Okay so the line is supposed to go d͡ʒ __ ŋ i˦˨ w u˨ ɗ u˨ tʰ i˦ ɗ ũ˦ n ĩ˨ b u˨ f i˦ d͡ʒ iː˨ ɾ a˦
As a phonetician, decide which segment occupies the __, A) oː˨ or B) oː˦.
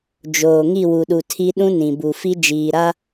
A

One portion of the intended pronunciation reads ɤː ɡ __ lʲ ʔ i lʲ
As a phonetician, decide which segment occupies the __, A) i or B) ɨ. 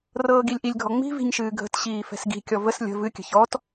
A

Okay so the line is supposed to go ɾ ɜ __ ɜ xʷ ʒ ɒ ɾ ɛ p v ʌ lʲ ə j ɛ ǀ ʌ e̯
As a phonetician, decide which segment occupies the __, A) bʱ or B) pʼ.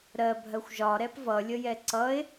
A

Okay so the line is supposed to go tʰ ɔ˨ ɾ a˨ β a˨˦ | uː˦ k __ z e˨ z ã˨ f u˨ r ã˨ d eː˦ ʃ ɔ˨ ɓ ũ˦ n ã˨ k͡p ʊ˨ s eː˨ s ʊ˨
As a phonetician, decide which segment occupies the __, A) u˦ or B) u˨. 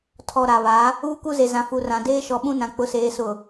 A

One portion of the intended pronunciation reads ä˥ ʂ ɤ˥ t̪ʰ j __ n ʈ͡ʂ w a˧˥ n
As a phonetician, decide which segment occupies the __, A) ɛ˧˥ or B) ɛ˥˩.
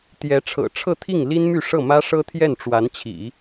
B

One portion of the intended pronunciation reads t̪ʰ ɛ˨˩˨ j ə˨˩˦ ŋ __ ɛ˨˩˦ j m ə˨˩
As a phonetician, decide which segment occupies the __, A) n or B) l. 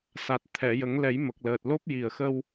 B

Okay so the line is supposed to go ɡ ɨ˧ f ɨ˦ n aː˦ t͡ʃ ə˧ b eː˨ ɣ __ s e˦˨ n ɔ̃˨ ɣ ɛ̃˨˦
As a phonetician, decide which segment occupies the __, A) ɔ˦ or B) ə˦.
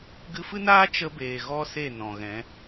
A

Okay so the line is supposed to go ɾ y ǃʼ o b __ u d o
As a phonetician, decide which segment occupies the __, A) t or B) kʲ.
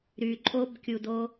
B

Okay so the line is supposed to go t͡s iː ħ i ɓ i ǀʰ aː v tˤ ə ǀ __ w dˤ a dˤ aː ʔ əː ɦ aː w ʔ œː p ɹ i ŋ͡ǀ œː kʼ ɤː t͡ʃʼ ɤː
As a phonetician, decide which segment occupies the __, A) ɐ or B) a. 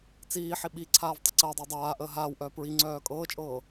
A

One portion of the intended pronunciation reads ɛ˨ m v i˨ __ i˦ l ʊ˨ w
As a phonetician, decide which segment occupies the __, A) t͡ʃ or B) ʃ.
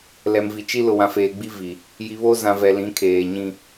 A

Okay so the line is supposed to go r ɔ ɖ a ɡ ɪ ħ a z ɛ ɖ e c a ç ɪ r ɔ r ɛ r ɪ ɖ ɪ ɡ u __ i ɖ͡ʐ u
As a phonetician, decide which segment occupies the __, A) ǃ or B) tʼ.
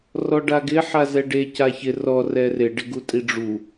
B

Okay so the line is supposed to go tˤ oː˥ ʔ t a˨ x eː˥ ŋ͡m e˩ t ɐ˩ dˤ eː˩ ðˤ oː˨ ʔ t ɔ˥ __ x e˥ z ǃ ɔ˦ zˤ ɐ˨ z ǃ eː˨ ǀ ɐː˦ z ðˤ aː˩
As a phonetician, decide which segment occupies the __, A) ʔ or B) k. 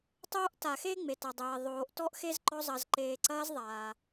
A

